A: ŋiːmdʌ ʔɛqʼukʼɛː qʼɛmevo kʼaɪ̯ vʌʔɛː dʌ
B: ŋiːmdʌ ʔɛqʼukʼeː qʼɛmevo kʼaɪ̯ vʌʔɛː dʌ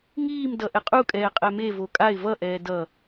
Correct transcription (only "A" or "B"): A